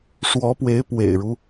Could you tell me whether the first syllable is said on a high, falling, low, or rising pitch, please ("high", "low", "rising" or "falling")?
rising